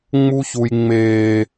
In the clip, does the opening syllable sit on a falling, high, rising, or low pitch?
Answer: high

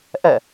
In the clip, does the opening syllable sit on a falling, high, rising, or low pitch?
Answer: falling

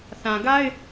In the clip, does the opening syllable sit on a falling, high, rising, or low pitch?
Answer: low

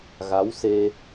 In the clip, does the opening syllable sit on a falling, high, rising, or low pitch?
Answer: rising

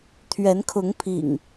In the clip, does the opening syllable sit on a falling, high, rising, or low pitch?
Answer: rising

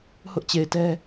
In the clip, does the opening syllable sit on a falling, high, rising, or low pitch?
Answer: high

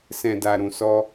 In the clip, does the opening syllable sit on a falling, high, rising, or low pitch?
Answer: low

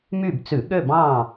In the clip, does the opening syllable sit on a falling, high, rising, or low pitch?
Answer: falling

